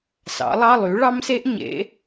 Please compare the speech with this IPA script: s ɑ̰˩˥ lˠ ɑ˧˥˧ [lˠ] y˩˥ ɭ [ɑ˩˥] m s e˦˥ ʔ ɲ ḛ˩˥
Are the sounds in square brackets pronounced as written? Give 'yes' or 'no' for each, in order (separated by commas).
yes, no